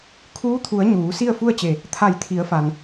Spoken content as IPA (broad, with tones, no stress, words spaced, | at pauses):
kʰuː˧˥t̪ʰu˩˧ə̯ ɲuː˩˧ si˥˨ə̯fu˥˨ə̯t͡ɕe˧˩ | t̪ʰa˧˩jt̪ʰi˩˧ə̯fa˩n